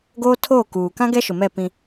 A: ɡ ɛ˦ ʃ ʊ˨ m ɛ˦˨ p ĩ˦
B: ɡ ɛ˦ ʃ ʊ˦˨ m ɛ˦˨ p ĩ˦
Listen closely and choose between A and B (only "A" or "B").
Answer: A